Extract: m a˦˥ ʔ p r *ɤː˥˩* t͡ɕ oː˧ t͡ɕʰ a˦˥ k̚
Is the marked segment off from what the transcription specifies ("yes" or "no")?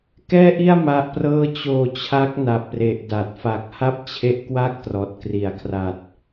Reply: no